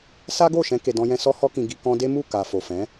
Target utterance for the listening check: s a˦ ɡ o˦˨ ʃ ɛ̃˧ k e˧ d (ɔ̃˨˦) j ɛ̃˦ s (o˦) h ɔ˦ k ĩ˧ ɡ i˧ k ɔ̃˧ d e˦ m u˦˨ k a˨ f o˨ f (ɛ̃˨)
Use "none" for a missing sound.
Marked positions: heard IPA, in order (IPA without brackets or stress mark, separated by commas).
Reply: ɔ̃˦, ɔ˦, ɛ̃˨˦